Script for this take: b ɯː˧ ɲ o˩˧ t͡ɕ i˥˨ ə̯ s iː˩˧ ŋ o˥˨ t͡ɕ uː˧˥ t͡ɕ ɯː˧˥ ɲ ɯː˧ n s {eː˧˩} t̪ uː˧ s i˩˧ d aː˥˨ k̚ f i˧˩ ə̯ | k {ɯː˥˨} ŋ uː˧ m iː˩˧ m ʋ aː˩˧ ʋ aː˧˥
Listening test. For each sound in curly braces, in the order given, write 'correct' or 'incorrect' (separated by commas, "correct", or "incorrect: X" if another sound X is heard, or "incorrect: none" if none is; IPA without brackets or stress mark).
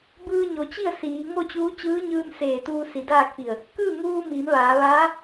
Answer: correct, correct